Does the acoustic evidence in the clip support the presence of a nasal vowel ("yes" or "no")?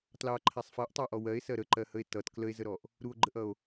no